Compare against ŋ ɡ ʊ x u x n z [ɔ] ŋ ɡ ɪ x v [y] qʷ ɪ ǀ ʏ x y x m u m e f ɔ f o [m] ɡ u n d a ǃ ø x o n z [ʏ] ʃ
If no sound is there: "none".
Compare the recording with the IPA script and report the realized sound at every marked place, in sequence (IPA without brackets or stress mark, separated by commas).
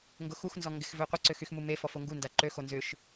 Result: ɔ, ø, ŋ, ʏ